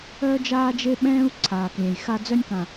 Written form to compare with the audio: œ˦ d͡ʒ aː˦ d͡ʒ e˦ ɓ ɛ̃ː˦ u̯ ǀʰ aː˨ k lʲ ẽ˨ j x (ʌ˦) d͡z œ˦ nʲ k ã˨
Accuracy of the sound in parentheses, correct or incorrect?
incorrect